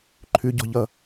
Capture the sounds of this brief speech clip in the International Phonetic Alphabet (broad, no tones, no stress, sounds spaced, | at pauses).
ǃʰ ʉ ɟ ɔ̤ ʎ ʌ